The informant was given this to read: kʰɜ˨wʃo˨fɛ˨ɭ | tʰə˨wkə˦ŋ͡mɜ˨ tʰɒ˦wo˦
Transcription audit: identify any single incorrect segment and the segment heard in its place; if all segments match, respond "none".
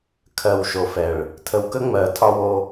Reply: none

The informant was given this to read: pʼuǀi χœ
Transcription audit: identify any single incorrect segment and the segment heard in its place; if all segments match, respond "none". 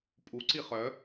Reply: none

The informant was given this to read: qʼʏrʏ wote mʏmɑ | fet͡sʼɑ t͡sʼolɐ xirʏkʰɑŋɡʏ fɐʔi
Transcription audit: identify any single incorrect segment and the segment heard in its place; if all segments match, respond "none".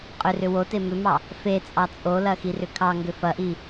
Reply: none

